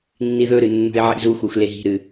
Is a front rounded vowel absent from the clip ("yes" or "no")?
yes